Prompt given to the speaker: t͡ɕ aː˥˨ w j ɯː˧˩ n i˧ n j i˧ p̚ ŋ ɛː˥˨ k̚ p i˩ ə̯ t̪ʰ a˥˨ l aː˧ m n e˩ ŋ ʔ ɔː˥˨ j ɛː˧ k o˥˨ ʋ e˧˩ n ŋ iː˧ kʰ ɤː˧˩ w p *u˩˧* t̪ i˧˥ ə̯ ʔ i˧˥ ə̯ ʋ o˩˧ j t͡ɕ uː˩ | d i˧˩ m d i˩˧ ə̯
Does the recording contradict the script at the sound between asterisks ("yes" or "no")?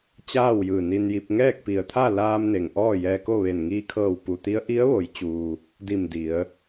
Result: yes